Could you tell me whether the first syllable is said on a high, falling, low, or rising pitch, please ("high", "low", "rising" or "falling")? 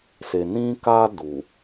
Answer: low